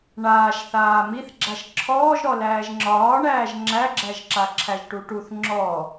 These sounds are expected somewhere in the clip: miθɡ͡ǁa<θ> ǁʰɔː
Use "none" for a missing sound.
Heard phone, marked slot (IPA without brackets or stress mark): ʃ